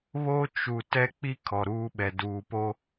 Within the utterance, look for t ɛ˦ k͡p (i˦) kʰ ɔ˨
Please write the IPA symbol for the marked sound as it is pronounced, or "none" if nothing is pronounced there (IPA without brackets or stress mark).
i˦